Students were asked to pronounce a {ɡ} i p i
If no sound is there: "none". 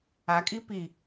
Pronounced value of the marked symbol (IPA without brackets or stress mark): kʼ